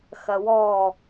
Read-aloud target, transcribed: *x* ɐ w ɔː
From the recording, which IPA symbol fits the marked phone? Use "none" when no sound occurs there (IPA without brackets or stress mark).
x